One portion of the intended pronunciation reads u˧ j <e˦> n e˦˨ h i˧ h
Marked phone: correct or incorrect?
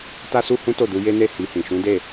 correct